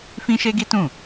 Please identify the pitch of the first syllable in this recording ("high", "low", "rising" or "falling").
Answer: high